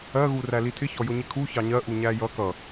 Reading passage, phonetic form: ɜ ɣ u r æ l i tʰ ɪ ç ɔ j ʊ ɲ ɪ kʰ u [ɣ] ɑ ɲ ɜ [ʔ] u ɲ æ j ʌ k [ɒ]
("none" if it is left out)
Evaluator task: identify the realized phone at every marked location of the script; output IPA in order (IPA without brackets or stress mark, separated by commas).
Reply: ç, ʔ, ʌ